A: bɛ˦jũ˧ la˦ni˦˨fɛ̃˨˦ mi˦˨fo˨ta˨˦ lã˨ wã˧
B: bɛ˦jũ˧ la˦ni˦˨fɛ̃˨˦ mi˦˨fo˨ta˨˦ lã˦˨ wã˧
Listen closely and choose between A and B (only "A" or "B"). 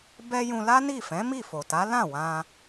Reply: B